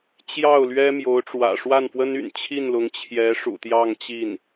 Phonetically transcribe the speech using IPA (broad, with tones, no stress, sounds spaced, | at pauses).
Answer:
t͡ɕ j ɑ˥˩ ʊ̯ l ɥ ɛ˥ m j o˧˥ ʊ̯ ʈ͡ʂ w ä̰˨˩ ʂ w a˥˩ n f w ə˥ n y̰˨˩ n t͡ɕʰ i˥˩ n l ʊ˧˥ ŋ t͡ɕʰ j ɛ˧˥ ʂ ṵ˨˩ t̪ j ɑ˥˧ ŋ t͡ɕ i˥˩ n